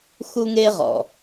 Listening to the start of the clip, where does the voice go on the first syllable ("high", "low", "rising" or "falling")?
high